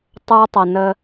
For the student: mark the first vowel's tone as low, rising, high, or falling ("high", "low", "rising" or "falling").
high